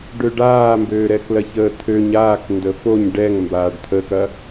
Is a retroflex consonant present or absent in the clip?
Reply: present